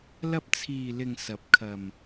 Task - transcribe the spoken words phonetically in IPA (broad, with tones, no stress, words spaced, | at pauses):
lɐ˧p̚ t͡sʰiː˨lɪ˨ŋ sɐ˨˥p̚kʰɐ˨m